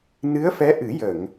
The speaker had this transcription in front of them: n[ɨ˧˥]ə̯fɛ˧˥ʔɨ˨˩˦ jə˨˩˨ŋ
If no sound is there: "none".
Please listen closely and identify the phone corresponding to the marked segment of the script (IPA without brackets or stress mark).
ɨ˧˥